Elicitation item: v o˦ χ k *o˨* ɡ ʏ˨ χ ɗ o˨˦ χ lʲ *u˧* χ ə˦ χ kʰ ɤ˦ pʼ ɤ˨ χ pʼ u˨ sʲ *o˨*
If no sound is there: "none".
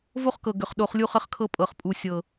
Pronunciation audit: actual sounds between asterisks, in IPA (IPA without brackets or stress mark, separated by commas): ɤ˨, u˦, ɤ˨